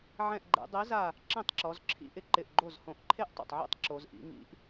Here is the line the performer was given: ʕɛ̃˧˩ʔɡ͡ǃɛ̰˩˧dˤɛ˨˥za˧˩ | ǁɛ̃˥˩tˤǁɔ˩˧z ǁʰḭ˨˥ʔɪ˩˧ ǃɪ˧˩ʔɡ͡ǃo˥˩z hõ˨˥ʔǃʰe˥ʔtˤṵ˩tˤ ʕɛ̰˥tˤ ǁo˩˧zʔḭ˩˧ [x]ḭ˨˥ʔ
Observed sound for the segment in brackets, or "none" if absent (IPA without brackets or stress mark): ŋ